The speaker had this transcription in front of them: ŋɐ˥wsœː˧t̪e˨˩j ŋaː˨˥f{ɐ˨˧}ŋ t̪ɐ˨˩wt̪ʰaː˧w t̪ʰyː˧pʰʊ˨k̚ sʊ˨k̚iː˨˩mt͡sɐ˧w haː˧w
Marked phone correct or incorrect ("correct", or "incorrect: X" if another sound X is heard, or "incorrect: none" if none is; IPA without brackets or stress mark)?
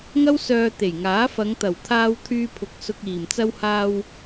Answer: correct